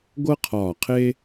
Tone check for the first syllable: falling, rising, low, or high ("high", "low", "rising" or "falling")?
high